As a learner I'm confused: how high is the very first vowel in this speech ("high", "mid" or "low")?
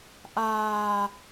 low